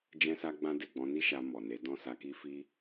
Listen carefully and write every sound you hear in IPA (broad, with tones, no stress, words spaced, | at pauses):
d͡ʒɛ̃˦sa˦ɡ͡bã˦ de˦˨ɡ͡bɔ̃˨˦ni˦ʃa˧ mɔ˨ne˨˦ dɔ̃˦˨sa˧ki˦fi˦